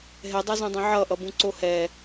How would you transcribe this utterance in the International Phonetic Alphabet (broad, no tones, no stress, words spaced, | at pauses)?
ɦɛdˤazũdˤɛ̃ ʕʌʔʌbũǀo hɛ